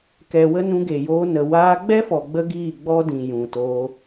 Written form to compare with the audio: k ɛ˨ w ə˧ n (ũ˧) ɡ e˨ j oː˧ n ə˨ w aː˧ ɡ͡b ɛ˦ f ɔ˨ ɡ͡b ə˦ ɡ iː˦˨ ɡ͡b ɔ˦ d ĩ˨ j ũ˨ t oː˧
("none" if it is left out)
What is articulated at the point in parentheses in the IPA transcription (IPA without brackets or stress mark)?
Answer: ũ˧